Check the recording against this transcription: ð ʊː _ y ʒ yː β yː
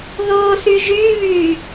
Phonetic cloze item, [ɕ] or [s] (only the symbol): s